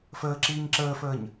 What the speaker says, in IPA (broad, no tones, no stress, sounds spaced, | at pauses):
f əː ǁ iː ɲ ǁ əː f əː ɲ